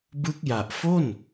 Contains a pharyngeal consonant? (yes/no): no